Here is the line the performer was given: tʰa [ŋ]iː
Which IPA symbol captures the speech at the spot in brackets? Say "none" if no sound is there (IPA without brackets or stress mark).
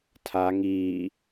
ŋ